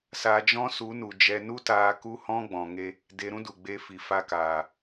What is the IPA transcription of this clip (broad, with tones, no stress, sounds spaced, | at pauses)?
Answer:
s a˧ d͡ʒ ɔ̃˦ s u˨˦ n u˨ d͡ʒ ɛ˧ n u˦ t aː˧ k u˦ h ɔ̃˦ ɡ͡b ɔ̃˨ ŋ e˧ | d e˧ ɾ ũ˦ d u˨ ɡ͡b e˧ f i˨ f a˧ k aː˨